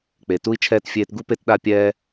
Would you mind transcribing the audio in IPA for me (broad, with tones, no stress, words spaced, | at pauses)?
k͡pe˨ tu˦i̯t͡ʃʰɛː˦t fʲeː˧tɡu˦pe˦t ɗa˦pʲɛ˦